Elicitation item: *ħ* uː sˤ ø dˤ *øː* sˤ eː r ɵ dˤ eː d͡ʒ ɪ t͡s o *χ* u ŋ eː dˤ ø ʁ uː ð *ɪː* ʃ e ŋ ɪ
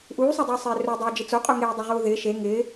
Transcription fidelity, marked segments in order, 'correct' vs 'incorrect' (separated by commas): incorrect, incorrect, incorrect, correct